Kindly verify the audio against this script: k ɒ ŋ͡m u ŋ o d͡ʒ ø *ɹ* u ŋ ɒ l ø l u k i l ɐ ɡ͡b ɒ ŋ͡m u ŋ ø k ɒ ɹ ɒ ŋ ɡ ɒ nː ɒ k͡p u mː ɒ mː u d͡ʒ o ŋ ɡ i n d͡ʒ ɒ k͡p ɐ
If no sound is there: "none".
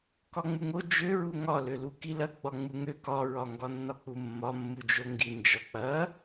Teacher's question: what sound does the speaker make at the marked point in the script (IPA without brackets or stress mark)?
ɹ